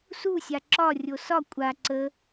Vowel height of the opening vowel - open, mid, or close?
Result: close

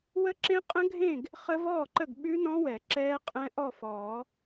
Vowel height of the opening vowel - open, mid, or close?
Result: mid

